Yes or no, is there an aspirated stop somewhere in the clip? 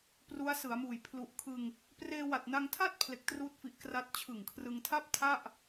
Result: yes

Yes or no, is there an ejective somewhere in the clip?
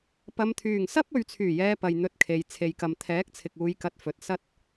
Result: no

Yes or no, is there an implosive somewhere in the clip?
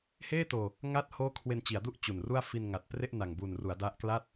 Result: no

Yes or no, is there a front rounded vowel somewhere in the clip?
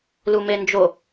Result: no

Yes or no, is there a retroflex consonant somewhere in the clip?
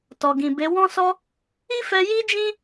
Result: no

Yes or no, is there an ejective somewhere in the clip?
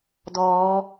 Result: no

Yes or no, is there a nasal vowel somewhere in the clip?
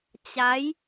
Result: no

